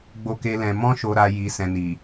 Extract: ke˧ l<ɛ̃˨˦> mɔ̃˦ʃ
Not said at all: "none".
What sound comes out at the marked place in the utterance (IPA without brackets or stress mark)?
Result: ɛ̃˧